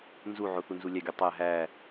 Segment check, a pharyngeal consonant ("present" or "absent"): present